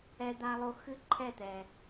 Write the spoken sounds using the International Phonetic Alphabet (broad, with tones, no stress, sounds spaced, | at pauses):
ɛ˥ d̪ a˥ lˠ o˥ x ɨ˥ ǃʰ ɛ˥˧ t̪ ɛ˧